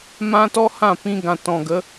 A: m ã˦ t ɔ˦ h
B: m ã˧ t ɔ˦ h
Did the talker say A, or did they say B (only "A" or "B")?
A